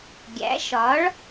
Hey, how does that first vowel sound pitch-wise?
rising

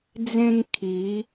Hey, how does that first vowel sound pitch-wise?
high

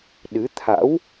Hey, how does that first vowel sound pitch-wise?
rising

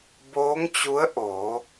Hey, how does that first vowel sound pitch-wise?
rising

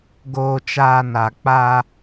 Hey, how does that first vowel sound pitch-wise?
low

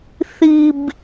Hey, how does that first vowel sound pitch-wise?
low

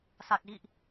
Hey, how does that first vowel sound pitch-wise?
low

